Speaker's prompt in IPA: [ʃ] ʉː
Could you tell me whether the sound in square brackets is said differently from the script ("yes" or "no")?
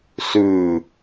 yes